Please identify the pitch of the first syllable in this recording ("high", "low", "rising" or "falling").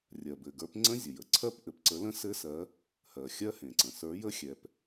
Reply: low